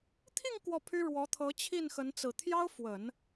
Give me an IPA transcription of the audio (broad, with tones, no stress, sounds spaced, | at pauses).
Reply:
t̪ʰ i˥˧ ŋ k w ɔ˥˩ pʰ y˥ ɻ w ɔ˧˥ t̪ʰ ɤ˧˥ t͡ɕʰ i˥˩ n x ə˧˥ n t͡s ɹ̩˨˩ t̪ʰ j ɑ˥ ʊ̯ f w ə˨˩˦ n